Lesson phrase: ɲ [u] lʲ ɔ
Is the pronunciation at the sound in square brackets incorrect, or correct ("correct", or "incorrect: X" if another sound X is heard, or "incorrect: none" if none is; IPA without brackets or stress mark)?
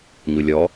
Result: correct